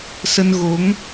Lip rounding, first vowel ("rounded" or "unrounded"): unrounded